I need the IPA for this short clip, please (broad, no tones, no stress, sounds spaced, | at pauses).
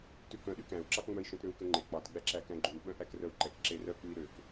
t ʉ k œ̃ ɗ y k æ̃ u̯ ǁ ɑ k ŋ͡m œ i̯ ʃ œ̃ t ɾ ø u̯ k ø ŋ͡ǃ e k͡p ɑ t ɡ͡b æ ǁ æ k æ̃ ɡ͡ǃ ʉ u̯ ɓ œ̃ ʔ æ k r œ u̯ ǃ ɛ k ǁ e r œ k͡p ʉ i̯ ɾ ø k